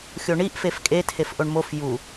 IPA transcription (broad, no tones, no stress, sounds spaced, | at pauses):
xʲ o ɳ i ʔ f e f kʼ e tʰ e f ʔ o ɳ m o f j u